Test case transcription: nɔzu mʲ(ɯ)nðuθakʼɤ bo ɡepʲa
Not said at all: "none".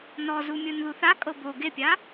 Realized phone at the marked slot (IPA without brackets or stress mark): ɯ